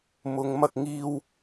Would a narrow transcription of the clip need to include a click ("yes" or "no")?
no